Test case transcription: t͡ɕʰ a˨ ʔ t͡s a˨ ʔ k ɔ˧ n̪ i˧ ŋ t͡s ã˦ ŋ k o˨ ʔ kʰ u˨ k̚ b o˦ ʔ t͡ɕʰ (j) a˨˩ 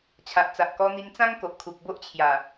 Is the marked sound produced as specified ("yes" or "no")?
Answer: yes